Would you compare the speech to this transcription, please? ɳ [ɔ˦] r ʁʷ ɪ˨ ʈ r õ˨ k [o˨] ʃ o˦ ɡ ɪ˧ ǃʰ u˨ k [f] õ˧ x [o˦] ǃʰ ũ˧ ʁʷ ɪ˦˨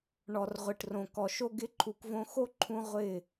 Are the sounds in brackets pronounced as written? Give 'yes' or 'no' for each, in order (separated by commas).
no, no, no, yes